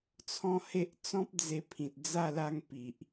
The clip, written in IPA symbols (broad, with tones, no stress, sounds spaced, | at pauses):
t͡sʰ ɔ̃˦ h e˦ ʔ t͡s ɔ̃˦ p̚ d͡z e˧ pʰ ĩ˨ t̚ d͡z a˥˧ l a˥˧ ŋ p i˨ ʔ